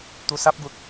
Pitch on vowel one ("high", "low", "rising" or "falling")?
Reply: low